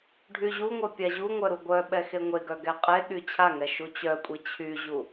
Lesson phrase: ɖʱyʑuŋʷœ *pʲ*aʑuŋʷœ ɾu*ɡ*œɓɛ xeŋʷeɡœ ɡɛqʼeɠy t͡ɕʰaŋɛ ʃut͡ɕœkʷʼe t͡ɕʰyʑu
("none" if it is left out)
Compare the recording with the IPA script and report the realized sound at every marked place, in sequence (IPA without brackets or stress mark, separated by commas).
pʲ, ɡʷ